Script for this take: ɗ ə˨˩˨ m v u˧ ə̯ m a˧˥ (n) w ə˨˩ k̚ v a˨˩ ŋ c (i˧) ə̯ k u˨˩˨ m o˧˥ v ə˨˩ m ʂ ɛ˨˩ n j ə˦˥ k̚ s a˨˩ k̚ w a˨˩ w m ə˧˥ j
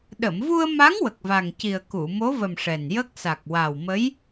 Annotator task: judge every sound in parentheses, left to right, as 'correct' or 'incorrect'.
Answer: incorrect, incorrect

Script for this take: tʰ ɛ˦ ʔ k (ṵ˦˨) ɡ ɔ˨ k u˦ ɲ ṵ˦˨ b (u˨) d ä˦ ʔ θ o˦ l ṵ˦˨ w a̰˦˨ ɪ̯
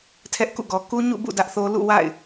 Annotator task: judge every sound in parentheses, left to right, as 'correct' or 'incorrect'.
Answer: correct, incorrect

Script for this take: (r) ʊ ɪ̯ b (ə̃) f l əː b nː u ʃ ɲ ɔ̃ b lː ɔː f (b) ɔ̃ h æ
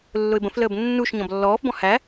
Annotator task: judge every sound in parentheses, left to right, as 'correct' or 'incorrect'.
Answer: incorrect, correct, correct

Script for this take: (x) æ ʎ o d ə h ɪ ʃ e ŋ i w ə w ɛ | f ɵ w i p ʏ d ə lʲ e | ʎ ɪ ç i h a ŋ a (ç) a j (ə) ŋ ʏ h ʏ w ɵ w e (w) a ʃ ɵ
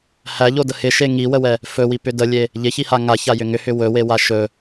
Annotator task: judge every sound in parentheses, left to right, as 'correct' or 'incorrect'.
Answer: incorrect, correct, incorrect, correct

